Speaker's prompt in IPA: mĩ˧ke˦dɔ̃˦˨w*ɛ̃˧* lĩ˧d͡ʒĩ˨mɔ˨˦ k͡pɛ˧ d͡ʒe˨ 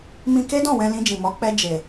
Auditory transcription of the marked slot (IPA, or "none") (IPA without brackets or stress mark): ɛ̃˧